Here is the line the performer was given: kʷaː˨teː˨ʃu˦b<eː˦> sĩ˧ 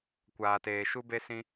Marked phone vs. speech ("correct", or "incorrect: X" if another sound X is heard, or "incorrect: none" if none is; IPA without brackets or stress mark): incorrect: e˦